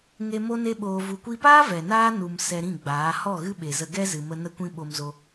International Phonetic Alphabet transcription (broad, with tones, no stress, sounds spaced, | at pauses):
ŋ e˧ m o˦ n e˦ ɓ oː˧ v u˨ kʷ i˧ p aː˦ v ɛ˨ n aː˦ n u˨ m s ɛ˧ ɾ ĩ˦˨ ɡ͡b aː˨˦ h ɔ˦˨ ɣ ɨ˦ ɓ e˨ z ə˧ ɡ ɛ˦ z ɨ˨ m ə˧ n ə˦ kʷ ĩ˦ ɓ o˧ m z o˧